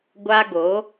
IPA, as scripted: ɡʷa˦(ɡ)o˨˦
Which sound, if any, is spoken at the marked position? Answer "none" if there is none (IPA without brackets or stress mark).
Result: ɡ